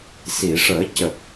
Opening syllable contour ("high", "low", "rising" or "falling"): low